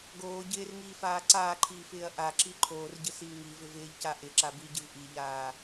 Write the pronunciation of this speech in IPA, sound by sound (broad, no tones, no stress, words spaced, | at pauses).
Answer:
ɡoː ɟɪːrŋiːfaː ǀaːǃʰiːfɪːɐ̯ ʔaǁi ǃʰoːrɟɪsiː ŋivɪv ɪːʎca ʔɪǁa biɟɪv ʔiʎaː